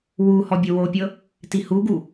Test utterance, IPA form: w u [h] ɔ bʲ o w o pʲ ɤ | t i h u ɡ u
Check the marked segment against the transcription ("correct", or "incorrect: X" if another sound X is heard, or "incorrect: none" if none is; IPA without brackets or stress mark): correct